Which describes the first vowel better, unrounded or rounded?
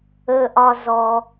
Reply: unrounded